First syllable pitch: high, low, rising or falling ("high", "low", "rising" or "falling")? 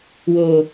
low